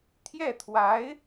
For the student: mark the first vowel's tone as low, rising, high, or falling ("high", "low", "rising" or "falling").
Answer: falling